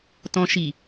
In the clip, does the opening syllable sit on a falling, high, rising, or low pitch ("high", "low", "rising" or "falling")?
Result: low